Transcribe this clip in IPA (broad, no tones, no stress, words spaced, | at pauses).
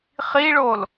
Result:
χiɭol